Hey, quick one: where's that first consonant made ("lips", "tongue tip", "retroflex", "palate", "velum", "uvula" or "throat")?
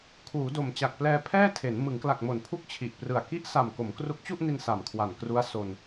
velum